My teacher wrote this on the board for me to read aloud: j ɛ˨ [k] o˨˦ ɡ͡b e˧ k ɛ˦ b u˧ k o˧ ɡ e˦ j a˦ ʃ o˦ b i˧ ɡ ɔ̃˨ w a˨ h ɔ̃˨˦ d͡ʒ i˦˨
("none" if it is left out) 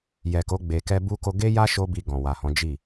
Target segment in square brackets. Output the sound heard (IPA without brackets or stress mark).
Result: k